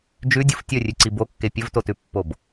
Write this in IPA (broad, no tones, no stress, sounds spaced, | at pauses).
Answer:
d͡ʒ ʉ dʲ u f tʲ ɵ rʲ ʉ ǀ i b o kː e pʲ ɵ v t o t ʉ pː o b